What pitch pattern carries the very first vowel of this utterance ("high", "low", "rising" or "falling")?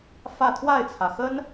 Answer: falling